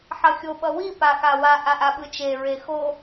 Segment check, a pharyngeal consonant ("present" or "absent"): present